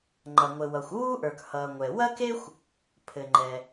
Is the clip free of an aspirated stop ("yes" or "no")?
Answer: no